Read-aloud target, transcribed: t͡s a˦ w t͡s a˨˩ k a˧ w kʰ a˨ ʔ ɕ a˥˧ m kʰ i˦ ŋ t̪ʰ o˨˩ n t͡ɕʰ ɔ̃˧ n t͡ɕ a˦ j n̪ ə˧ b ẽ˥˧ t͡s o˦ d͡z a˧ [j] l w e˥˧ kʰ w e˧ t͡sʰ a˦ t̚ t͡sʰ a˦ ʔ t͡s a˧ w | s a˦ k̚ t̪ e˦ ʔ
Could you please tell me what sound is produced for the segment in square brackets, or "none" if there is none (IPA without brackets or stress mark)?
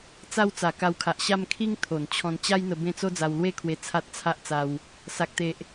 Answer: w